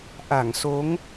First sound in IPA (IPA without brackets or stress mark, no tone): ʔ